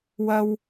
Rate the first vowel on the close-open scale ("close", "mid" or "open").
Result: open